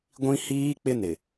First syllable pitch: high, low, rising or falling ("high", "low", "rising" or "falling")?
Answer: high